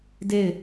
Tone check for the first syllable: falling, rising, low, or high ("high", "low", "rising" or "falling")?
falling